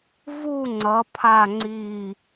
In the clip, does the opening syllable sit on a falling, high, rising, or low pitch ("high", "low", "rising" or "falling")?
falling